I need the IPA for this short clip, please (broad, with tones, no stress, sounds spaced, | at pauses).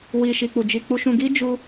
w i˧ ʃ i˧ k͡p u˧ d͡ʒ i˧ k͡p u˧ ʃ ũ˧ ɡ i˦ d͡ʒ u˦